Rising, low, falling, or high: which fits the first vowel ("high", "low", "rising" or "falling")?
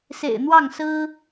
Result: low